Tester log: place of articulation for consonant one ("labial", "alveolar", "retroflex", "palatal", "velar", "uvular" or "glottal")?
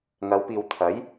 velar